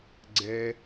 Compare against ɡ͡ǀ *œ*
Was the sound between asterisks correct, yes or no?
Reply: no